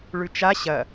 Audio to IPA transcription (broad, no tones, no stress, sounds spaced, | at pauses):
ɭ ʉ t͡ʃ a ɕ ɐ